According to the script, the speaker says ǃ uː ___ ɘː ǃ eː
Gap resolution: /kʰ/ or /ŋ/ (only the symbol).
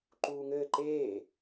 ŋ